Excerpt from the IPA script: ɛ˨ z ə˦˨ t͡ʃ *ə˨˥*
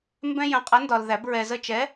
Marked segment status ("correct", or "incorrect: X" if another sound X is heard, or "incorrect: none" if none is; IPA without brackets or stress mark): incorrect: ɛ˨˥